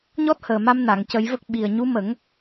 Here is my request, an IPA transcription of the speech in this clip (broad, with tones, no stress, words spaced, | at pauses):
ɲɔ˦˥t̚həː˨˩ma˧m na˨˩˨ŋcə˨˩˦jvə˦˥k̚ ɓi˨˩ə̯ɲu˧˥ mə˨˩˦ŋ